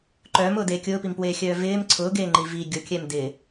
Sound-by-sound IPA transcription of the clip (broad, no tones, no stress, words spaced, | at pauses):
ǃœːmʊːdeː kʲʊːpimpweːxʲœː vɪːm ǀʰʊːɡeːŋ͡ǃi vi ɡʲʊkʲɛm dɪ